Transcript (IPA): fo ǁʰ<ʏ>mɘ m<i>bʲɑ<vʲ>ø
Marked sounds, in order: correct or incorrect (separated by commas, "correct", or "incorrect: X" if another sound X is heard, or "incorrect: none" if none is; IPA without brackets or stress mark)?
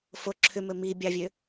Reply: correct, correct, correct